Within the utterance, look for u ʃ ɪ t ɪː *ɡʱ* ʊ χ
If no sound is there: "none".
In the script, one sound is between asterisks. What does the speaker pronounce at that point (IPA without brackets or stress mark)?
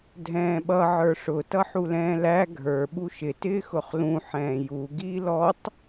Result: x